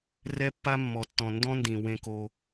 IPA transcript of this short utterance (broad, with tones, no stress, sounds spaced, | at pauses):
r ɛ˦ pː a˦ mː ɔ˨ tː ɔ̃˨ n d ɔ̃˦ n d ĩ˨ w ẽ˦ k o˦